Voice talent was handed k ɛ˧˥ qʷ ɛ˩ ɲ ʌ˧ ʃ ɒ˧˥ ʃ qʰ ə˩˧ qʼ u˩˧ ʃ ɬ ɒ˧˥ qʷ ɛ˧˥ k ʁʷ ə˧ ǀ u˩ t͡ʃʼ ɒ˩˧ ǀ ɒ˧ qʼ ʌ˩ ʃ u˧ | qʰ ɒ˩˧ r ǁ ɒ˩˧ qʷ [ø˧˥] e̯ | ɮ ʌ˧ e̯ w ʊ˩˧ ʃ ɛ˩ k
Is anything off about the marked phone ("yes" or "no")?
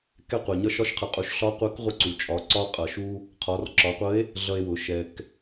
yes